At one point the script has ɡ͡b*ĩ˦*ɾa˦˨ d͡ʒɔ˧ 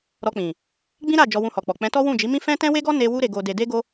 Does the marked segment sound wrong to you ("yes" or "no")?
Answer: no